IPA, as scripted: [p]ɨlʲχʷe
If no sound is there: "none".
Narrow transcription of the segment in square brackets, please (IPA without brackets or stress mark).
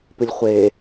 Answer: p